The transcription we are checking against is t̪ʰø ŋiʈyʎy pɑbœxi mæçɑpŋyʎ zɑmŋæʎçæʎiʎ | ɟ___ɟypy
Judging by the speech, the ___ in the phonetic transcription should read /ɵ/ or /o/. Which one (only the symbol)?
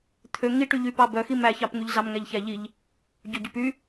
ɵ